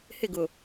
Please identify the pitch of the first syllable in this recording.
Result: falling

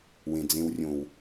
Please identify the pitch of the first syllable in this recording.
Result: low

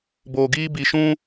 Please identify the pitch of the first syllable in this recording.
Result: low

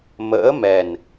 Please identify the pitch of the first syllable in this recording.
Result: rising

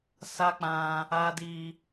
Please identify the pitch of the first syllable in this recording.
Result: high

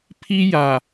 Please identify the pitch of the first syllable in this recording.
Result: high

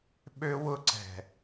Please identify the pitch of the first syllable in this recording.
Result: high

